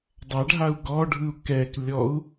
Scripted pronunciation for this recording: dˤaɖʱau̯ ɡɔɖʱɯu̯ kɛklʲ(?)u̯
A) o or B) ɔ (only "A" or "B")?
B